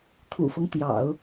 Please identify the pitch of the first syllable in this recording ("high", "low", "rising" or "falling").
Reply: low